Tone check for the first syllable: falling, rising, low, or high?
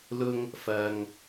high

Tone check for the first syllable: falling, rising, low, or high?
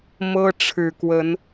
high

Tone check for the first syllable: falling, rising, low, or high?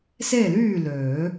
falling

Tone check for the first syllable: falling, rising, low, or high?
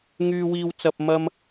high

